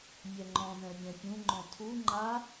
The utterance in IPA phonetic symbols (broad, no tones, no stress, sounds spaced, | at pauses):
mʲ ɛ ŋ͡ǃ ɔ̃ n ɛ̃ mʲ ɛ̃ pʲ ũ ŋ͡ǃ ɔ̃ tʰ u ŋ͡ǃ a